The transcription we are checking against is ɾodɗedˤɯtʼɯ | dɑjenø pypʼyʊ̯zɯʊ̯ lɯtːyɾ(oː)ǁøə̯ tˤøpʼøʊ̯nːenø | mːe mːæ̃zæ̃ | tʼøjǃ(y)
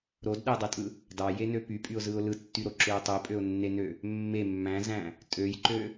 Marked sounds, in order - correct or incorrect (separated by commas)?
incorrect, incorrect